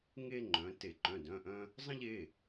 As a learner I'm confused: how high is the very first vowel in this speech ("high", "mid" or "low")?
mid